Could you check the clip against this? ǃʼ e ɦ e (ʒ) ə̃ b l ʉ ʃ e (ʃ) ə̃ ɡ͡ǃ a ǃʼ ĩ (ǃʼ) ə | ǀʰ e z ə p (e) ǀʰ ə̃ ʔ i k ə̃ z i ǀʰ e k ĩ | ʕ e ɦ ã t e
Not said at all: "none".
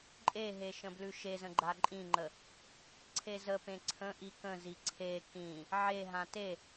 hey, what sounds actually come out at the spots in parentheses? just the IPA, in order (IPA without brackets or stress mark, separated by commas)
ʃ, z, ŋ͡ǃ, ẽ